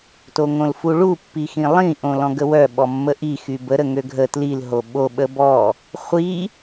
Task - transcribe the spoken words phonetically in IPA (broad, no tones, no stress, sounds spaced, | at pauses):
t o ŋ õ l f u ɭ u pː i x ĩ lˠ ĩ ʔ õ l ɔ̃ ɡ ə w œ ɓ ɔ mː ə ʔ i x y b ə ɾ ə ŋ ø ɡʱ ə t l i l ɦ o ɓ o ɓ ə b ɔ | χʷ i